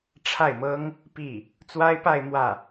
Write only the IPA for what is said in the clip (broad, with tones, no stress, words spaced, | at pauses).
ʈ͡ʂʰa˥˩ɪ̯mɤ˥ŋ | pi˥˩ | t͡swa˥ɪ̯pa˥˧ɪ̯ mwä˥˩